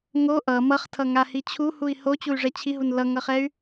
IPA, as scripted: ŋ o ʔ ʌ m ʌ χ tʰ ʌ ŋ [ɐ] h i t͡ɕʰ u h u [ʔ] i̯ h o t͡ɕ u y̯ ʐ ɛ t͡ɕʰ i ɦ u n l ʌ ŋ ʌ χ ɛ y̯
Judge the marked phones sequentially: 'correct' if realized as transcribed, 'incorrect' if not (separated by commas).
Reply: incorrect, incorrect